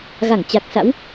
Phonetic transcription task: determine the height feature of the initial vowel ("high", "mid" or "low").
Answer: low